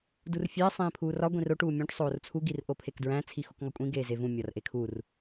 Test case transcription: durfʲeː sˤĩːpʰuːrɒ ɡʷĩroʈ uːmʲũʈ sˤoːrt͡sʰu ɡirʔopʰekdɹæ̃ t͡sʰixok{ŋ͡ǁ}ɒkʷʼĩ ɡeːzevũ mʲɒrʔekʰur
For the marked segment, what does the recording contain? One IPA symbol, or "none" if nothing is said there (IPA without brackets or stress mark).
ŋ